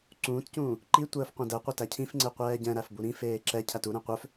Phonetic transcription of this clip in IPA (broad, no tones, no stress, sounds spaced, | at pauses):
ǀ ũː t c ũː | ǃ i tʷ əː f qʷ ɛ̃ d ɛ qʷ ə t æ cʰ ĩ f ŋ͡ǀ e qʷ ɛː ɟ ɛ̃ ɾ æ f b u ɾ ĩ f eː ǁ ɛ cʰ æ t u ɾ ɛ̃ qʷ œ f